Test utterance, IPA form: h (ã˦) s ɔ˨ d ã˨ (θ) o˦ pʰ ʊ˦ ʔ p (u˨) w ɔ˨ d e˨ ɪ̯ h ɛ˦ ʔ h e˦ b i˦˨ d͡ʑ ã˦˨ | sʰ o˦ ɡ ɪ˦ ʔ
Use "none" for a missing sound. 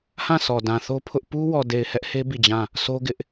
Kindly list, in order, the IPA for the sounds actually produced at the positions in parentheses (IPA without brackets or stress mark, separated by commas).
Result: ã˦˨, θ, u˦